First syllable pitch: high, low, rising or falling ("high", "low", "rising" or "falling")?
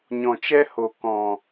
low